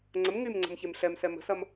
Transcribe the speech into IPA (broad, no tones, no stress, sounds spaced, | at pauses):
ŋ͡ǀ ə m ŋ y m ŋ͡ǀ ə̤ m ç e m ɬ ɛ m s ɛ m ə̤ s ɐ m